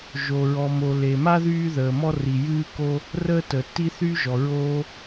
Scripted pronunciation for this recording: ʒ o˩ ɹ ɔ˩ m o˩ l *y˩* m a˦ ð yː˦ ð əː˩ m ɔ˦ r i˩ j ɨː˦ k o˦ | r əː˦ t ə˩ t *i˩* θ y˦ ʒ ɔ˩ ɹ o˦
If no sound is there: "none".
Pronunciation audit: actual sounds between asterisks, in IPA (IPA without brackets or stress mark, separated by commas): e˩, i˦